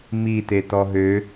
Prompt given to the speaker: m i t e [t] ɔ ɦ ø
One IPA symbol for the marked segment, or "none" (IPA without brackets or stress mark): t